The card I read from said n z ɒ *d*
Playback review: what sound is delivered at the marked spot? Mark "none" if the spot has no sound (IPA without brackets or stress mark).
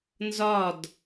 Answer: d